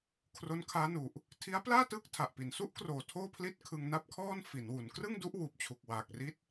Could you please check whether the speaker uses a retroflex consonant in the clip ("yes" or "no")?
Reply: no